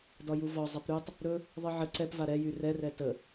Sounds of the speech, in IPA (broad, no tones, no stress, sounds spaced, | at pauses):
d ɒ j u v ɒ zˤ ɛ p ɾ y tˤ | ɾ ɵ | ðˤ ɨ ʕ ə ǀ ɛ p v a ɾ ɛ j y r ɛ r ɛ t ə